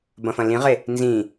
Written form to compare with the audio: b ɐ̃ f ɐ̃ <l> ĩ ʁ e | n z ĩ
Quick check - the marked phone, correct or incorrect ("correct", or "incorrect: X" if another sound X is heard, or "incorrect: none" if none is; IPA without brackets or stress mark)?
correct